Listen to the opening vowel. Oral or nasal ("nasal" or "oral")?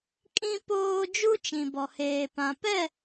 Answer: nasal